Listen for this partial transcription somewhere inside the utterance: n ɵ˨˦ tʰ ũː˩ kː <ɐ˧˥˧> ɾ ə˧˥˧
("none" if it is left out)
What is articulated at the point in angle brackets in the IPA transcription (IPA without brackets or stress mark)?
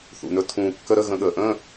ə˧˥˧